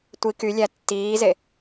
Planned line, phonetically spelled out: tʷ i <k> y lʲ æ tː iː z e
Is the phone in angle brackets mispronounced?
no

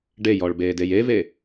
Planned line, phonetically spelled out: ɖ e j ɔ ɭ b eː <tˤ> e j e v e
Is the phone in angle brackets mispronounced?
yes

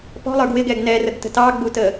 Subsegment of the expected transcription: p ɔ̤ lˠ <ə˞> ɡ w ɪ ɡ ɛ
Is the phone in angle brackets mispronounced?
no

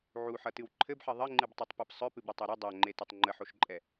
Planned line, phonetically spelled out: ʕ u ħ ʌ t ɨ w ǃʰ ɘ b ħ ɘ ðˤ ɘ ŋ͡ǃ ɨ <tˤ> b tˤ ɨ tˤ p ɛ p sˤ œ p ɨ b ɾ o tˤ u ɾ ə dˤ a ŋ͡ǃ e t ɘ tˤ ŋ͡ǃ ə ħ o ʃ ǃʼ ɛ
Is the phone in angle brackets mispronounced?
yes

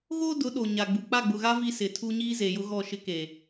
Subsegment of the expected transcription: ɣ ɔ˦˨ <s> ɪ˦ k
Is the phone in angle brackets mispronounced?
yes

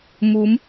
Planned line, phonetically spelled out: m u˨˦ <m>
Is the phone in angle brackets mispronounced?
no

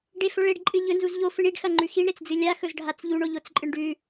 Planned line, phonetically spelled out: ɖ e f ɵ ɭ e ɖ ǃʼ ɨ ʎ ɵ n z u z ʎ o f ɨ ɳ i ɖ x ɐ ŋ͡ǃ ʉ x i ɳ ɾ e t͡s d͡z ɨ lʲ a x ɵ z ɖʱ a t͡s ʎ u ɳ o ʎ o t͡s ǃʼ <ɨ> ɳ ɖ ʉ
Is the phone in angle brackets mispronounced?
no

